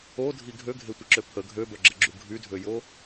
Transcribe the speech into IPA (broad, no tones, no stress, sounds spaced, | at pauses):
o dʱ i ɡʱ ø ɡʱ e tʷ ə ǁ ø pʰ ə ɡʱ ø b œ ɡ͡ǁ ə ɡ͡ǁ u ɡʱ y dʱ ø j o